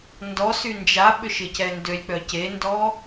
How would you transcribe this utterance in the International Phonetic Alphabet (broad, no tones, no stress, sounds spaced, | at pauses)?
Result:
n d ɔ s y n d͡ʒ a ɓ ʏ ʃ ɪ c ɛ n d ø lʲ k͡p œ c e n d ɔ